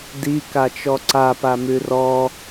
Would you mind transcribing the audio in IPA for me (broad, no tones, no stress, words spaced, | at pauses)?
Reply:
dikat͡ʃɔ ǀapa mʉrɔ